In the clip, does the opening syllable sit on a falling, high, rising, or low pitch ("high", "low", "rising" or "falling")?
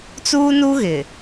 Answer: high